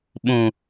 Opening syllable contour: low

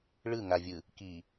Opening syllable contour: falling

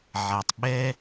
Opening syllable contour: low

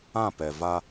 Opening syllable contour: falling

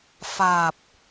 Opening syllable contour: low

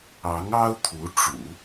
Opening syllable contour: rising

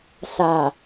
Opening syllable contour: low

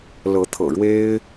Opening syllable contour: rising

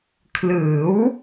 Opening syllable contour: rising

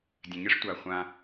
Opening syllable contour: low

